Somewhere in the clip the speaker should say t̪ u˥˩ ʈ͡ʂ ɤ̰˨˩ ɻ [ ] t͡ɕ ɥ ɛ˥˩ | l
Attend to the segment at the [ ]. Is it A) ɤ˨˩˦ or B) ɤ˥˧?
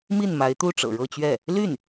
B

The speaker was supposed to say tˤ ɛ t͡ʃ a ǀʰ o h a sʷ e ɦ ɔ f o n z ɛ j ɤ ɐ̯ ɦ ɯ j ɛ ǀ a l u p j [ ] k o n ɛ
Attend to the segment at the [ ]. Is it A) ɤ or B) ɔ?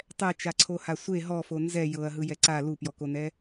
B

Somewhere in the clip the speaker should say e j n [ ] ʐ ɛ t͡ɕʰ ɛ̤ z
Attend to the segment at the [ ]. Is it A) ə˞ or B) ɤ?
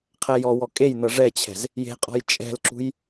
B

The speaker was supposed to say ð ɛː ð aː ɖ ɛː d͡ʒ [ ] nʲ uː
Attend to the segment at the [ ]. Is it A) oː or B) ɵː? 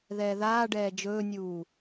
B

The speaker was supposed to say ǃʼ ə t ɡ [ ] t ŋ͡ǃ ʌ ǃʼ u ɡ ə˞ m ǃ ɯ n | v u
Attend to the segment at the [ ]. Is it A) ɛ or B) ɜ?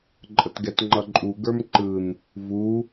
A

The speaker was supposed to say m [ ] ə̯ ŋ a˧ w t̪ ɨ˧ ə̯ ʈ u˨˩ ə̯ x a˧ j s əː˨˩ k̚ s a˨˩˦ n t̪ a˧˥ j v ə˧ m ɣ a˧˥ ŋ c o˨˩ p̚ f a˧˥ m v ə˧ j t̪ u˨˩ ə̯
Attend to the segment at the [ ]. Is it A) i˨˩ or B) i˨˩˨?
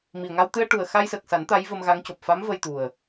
A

